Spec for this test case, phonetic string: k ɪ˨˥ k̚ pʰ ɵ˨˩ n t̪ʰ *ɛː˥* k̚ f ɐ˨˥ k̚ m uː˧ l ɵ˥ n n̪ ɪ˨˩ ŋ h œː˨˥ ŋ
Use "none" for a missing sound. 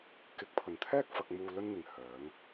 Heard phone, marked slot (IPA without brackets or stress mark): ɛː˥